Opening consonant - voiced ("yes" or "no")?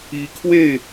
no